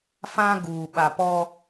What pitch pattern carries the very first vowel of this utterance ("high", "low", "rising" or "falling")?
high